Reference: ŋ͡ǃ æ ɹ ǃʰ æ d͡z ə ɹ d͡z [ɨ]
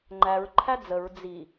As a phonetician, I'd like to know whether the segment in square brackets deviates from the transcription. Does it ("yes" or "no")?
yes